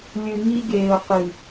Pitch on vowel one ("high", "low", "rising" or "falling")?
low